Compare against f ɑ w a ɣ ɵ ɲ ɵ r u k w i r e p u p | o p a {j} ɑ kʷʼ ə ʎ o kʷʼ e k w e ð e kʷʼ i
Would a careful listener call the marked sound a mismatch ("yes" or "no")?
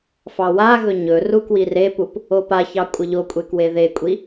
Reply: yes